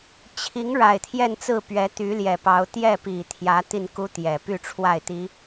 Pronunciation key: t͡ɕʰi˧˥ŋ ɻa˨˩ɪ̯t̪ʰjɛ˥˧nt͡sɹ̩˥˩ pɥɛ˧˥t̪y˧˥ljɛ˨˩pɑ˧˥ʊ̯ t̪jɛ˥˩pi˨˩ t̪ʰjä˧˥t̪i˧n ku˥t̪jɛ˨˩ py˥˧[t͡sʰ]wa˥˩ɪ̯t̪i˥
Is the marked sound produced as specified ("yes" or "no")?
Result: no